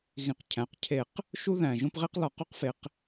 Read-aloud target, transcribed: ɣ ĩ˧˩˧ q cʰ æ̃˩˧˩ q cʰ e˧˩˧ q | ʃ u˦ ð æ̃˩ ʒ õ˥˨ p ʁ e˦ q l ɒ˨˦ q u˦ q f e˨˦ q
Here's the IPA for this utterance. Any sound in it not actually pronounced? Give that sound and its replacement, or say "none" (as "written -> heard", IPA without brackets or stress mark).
none